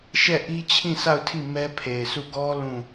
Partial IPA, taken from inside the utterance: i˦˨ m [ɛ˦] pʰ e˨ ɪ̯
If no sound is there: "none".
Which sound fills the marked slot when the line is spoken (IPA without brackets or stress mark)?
ɛ˦